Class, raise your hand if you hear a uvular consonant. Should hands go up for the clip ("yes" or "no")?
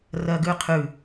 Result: yes